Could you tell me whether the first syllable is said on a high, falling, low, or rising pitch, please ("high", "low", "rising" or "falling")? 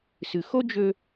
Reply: low